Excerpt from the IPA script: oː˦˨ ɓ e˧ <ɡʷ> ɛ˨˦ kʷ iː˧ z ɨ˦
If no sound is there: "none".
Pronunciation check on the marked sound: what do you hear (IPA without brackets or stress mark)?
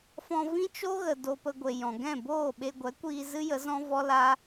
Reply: ɡʷ